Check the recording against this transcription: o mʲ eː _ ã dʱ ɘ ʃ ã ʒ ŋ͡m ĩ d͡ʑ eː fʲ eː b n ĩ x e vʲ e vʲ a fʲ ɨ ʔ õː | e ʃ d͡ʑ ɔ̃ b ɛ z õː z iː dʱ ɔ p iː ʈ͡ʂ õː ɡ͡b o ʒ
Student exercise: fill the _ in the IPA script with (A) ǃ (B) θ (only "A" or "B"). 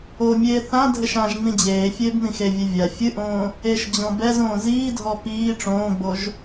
B